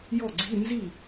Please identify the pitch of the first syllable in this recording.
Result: falling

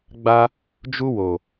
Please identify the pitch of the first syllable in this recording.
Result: high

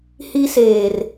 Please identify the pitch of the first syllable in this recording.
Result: high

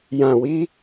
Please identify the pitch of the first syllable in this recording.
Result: low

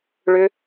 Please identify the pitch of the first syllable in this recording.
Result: high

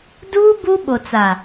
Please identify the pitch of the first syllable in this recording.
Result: high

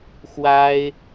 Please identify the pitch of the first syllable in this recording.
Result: high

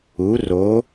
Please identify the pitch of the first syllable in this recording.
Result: rising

